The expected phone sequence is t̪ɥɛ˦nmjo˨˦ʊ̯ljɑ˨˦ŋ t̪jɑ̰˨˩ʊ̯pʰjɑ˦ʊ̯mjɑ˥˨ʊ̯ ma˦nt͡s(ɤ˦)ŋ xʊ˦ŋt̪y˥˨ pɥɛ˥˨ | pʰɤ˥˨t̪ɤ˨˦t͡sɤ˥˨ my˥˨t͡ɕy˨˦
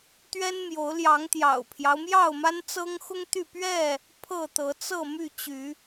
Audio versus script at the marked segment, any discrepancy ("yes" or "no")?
no